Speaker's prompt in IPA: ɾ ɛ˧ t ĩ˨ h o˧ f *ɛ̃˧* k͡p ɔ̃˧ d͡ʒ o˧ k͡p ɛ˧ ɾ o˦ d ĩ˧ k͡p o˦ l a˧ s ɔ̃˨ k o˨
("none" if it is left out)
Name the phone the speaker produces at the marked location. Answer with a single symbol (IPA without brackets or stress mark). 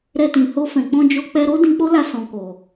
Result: ɛ̃˨